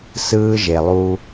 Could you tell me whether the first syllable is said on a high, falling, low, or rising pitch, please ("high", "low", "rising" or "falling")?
high